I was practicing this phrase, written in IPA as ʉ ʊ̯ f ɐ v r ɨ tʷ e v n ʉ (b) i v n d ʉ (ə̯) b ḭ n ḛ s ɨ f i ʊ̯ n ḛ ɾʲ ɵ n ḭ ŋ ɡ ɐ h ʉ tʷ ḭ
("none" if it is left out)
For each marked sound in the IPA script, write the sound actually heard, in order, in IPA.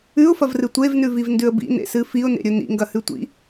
v, ə̯

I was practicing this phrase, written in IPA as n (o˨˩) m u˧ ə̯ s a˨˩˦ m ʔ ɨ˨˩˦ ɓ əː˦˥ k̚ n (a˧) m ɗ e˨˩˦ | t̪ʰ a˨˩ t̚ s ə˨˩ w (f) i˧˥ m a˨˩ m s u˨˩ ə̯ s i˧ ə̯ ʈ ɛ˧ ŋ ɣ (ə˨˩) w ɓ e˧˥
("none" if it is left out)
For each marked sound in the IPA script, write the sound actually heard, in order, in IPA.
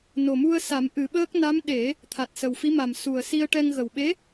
o˨˩, a˧˥, f, ə˨˩

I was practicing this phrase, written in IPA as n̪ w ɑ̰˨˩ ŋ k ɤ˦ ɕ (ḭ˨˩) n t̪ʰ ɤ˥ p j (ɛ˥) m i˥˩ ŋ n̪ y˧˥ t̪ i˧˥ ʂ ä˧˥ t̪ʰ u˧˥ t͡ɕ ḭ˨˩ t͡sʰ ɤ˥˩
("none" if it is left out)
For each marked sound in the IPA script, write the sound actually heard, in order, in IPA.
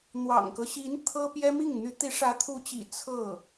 i˧˥, ɛ˥

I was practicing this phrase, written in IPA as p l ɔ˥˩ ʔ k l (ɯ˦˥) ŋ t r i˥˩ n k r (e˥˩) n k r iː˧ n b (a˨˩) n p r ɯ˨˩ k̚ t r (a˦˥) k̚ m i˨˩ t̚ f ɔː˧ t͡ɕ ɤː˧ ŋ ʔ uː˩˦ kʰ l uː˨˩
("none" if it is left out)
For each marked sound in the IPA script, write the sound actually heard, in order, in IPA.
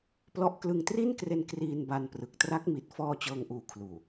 ɯ˧, e˧, a˧, a˦˥

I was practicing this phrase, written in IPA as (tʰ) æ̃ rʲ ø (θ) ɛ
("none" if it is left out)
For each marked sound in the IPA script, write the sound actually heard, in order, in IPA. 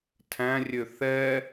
tʰ, θ

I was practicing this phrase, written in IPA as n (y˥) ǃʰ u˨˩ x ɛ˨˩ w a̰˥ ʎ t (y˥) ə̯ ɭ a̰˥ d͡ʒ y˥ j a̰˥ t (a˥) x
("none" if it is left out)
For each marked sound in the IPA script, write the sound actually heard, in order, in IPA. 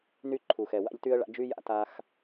y˥, y˥, a˥

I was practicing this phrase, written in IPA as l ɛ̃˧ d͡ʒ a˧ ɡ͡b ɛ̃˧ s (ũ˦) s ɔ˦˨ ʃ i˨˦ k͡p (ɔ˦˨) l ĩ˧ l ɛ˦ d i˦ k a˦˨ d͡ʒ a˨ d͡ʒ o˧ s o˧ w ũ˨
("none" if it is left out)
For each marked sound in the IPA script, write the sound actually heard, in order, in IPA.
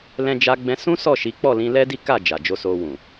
ũ˦, ɔ˦˨

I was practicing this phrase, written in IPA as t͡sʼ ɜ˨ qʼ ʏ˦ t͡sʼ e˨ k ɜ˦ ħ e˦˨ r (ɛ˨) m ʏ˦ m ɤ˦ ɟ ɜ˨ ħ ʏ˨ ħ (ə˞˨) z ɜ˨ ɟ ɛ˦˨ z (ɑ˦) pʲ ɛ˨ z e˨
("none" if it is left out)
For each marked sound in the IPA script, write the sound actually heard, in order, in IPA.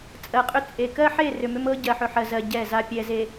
ʏ˨, ɜ˨, a˦

